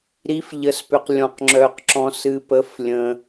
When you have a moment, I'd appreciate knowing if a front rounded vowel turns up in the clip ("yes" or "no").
yes